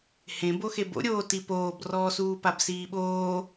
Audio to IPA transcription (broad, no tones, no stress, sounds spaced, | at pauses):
h ẽ b o x e b o̰ ɾʲ oː t i p oː b r ɔː s uː p a b s iː ɓ oː